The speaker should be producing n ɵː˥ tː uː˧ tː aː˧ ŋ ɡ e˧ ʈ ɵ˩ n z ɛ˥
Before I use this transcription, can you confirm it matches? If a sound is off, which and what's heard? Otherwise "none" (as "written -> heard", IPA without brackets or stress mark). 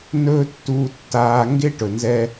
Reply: e˧ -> e˥